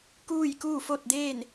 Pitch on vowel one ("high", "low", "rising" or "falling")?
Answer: falling